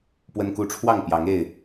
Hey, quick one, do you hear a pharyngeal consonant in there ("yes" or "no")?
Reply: no